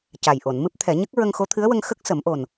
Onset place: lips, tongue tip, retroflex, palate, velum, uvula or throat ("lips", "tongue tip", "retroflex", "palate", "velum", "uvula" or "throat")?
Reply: palate